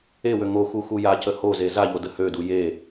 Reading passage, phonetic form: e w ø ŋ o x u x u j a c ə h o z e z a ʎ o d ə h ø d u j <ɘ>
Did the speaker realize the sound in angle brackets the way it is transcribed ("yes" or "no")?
no